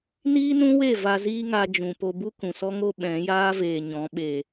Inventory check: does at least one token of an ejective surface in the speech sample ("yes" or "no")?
no